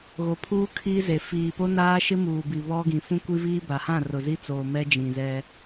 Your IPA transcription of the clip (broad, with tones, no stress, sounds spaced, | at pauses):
ɣ o˨ pʰ uː˦ kʰ iː˦ z e˨ f iː˨ p o˦ n aː˦ ʃ ɪ˦ m uː˨ b i˨ β ɔ˦ ɡ ĩ˨ f ũ˦ kʷ i˦ v iː˦ b a˨ h ã˦˨ r ʊ˨ z i˦ t͡s oː˨ m ɛ˦ d͡ʒ ĩ˨ z ɛ˦